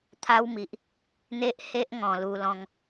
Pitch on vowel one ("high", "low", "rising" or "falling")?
high